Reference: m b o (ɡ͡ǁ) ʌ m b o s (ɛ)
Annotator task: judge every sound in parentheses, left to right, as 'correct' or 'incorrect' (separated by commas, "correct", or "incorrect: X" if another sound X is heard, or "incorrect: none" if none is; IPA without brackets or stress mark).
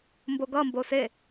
incorrect: ɡ, incorrect: e